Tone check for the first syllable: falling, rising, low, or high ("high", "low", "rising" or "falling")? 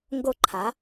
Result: high